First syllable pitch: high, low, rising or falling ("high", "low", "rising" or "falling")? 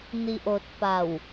low